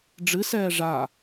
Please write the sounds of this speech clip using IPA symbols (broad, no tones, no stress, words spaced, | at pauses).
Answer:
ɖ͡ʐɨ sɛːʐa